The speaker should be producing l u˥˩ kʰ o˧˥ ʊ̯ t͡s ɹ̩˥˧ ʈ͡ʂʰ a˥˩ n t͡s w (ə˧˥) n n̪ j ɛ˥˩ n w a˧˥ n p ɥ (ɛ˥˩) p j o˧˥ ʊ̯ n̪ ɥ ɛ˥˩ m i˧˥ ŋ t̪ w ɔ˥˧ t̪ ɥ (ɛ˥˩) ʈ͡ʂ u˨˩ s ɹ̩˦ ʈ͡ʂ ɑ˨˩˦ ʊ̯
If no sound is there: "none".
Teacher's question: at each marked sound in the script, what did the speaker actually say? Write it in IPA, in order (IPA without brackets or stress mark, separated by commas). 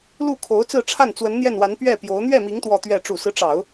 ə˧˥, ɛ˥˩, ɛ˥˩